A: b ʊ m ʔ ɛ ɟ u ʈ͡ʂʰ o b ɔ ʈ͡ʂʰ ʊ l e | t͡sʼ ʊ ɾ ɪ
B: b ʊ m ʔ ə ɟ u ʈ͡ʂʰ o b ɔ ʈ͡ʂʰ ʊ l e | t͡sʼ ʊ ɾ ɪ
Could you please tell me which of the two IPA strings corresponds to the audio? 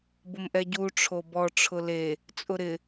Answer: A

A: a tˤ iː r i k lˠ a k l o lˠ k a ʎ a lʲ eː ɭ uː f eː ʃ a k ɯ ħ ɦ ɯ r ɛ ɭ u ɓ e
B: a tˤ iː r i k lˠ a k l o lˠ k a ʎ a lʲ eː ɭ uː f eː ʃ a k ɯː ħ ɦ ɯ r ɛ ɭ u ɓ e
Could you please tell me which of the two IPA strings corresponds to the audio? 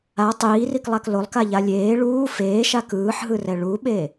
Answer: B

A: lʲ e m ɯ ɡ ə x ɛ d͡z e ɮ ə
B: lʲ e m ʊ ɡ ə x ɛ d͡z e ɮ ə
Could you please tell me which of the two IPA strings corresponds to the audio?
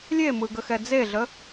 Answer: A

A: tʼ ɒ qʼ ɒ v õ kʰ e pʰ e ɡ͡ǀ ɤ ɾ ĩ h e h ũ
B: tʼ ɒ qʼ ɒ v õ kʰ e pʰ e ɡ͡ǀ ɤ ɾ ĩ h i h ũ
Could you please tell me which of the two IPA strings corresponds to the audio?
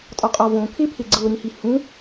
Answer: B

